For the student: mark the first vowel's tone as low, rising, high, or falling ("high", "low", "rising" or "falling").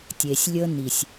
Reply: low